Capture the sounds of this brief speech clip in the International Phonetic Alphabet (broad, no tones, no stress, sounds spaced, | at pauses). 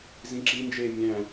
z ĩ ǁ i n d͡ʒ eː mʲ æ̃